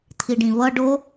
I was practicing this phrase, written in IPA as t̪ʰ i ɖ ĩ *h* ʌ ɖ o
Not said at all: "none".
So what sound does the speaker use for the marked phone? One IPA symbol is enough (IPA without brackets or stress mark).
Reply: β